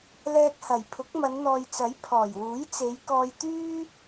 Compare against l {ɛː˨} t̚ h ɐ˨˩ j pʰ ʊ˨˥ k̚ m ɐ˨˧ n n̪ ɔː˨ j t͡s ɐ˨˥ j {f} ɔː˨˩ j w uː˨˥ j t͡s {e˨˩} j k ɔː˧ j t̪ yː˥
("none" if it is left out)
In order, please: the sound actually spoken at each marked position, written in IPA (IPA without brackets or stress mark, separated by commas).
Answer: ɛː˧, pʰ, e˨˧